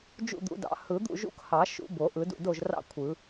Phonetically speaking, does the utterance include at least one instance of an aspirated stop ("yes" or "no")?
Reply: yes